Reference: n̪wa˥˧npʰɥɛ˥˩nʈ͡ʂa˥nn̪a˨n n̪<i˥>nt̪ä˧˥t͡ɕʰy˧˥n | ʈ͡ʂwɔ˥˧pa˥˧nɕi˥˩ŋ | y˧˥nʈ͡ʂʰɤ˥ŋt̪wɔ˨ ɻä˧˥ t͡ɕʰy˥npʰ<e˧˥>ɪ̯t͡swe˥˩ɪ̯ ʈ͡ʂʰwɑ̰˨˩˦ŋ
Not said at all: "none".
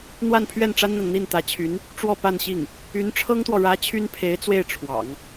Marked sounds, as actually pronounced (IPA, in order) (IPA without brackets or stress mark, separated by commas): i˥˩, e˧˥